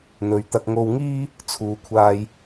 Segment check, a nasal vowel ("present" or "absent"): absent